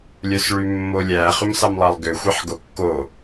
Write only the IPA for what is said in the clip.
lʲ œ s ɭ y mː o lʲ æ χ ʉ m s ɑ m lˠ ɑ lˠ ɡ ø xʷ e ħ ɡ o kː o

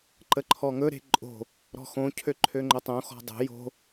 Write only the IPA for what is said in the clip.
ǃ ə ǃʰ ɔ ŋ ɵ ɾ e̤ ǃʼ o̤ | ɾ ɔ̤ x õ cʰ ø ǃʰ ø ŋ͡ǃ o tˤ õ x ɔ̤ dˤ o̤ j o̤

